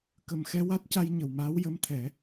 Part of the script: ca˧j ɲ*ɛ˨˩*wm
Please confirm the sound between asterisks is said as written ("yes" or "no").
no